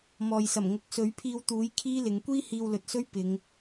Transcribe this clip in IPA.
m ɔː˨ j s ɐ˨˩ m ŋ ʊ˨˥ k̚ s ɵ˨˥ ɥ pʰ iː˧ w t̪ uː˨˥ j kʰ iː˥ l ɪ˨ ŋ kʷ iː˥ h iː˧ w l ɵ˨ t̚ s ɵ˥ ɥ p ɪ˨˧ ŋ

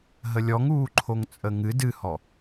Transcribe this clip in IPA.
ɦ ə lʲ ɔ ŋ uː ǃʰ o ŋ t͡sʼ ə ŋ ɨ d ɨ h ɔ

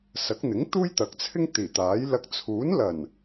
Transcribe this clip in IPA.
s ɐ˨˥ k̚ n̪ ɪ˨˥ ŋ t̪ uː˥ j t̪ ɐ˨˥ k̚ t͡sʰ ɪ˥ ŋ t̪ iː˨˩ t̪ aː˨˥ j l ɐ˧ k̚ t͡sʰ uː˨˥ n l ɐ˨˩ n

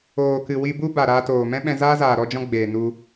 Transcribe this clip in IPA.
oː˨ k ɨ˨ w i˧ b u˦ b a˨ ɾ aː˧ t oː˨ m ɛ̃˦ ɓ ɛ̃˧ z aː˦ z aː˨ ɾ ɔ˧ d͡ʒ ɔ̃˧ ɡ͡b eː˨ n u˧

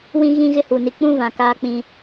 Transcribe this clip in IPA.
w ĩ˦ ɣ ĩ˦ ɣ ɪ˦ h u˨ n i˨ k͡p ũ˦ v ã˨ k aː˦ k͡p ĩ˦

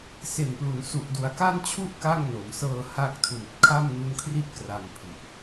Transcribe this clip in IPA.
s e˨˩ n p l u˩˦ n s u˨˩ ʔ d u˩˦ a̯ k a˥˩ n t͡ɕʰ u˥˩ ʔ k a˥˩ ŋ n o˩˦ m s ɤː˧ h a˦˥ k̚ tʰ uː˨˩ t̚ kʰ a˥˩ m n u˦˥ n kʰ r i˥˩ t̚ k r a˧ m pʰ i˨˩ ʔ

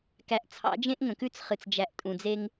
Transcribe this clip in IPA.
k æ˨ ʔ t͡sʰ ɑ̰˨˦ d͡ʒ ẽ˦ ʔ ŋ ə̃˨ k ʉ˦ t͡s χ ɨ˨ t͡s d͡ʒ æ˨ ʔ tʼ ũ˨ d͡z e˦ ŋ

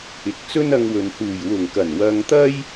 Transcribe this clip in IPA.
ɪ˨ k̚ t͡s ɵ˥ n ɐ˧ ŋ w ɵ˨ n h uː˨˩ j w ʊ˨˩ ŋ k ɐ˨˩ n w ɐ˧ ŋ t̪ ɐ˥ j

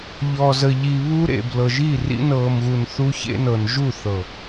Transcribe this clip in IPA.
ʎ ɔː˨ z ə˨ ʎ i˨ β uː˦ ɾ ḛ˨ b l ɤ˨ ʒ i˦˨ r ḭ˦ n ɤː˨ m ɣ u˨ n θ u˦ ç ḛ˦ n ɤ˨ n ʒ u˦˨ θ ɤ˨

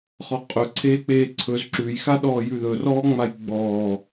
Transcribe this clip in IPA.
χ ɔ qʼ ɵ ǀʰ eː k͡p eː ǀʰ ɵ z ǁ ʉ j x a ɗ ɔː j ʉ ð ɵ r ɔː ŋ͡m a j ɡ͡b ɔː

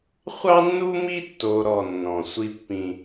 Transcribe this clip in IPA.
χʷ ɑ˦ nː u˦ m i˦ tː o˦ ɾ ɔ˦˨ nː ɔ̃˨ sʷ i˦ pː ĩ˦

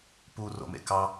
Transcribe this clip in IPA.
p u r o̰ m ḛ k ɑ

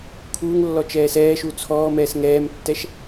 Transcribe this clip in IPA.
kʰ uː ŋ lː ɔ t͡ʃ ɛː s ɛː ʃ u t͡sʰ ɔː m ɛː s ŋ ɛː m tː ɛ ʃ

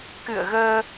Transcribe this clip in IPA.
k ɨ̰˧˨ ə̯ ɣ əː˧

